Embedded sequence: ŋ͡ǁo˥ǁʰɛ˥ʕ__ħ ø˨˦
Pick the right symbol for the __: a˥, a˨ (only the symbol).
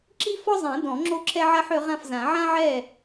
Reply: a˥